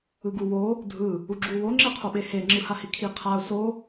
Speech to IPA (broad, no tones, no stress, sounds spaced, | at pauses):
ɯ ɡ u w o | dʱ ɯ | u ɡ͡ǁ u w o ŋ͡ǁ e qʰ o ɓ e h e ŋ͡ǁ ɯ h a h i kʰ i qʰ a ʊ̯ s o